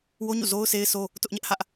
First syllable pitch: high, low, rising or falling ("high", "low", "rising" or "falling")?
high